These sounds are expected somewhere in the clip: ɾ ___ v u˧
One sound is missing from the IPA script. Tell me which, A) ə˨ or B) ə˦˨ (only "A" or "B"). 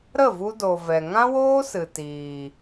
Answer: B